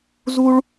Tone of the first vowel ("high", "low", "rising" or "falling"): high